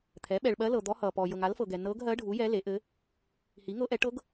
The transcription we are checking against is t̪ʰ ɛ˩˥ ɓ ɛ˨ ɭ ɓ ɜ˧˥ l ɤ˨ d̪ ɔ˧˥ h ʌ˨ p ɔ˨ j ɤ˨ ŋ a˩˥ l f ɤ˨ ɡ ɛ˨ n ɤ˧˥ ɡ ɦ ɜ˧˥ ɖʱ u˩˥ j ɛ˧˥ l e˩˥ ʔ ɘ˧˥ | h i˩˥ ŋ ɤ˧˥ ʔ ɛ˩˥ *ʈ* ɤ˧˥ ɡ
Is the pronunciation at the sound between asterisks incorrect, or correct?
correct